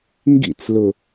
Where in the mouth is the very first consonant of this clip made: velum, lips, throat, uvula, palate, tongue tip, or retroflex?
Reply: velum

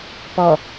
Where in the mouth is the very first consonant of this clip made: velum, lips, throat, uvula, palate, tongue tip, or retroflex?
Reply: lips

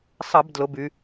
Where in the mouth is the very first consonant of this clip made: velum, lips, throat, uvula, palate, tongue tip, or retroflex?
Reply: tongue tip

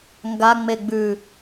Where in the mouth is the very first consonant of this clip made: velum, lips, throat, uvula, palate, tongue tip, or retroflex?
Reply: velum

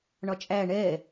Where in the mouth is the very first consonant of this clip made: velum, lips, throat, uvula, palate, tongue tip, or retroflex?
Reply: retroflex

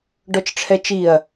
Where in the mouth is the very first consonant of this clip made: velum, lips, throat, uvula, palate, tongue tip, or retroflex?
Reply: retroflex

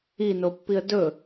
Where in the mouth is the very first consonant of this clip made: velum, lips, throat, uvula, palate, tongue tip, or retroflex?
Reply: tongue tip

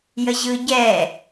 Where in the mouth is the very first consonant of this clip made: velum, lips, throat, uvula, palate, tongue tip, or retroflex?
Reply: palate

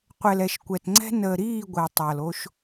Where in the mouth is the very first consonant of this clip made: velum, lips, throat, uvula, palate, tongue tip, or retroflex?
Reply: uvula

